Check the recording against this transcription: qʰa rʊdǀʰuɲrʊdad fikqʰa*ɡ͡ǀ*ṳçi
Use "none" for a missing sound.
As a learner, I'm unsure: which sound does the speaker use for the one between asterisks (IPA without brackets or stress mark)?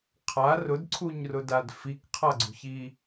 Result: ɡ͡ǀ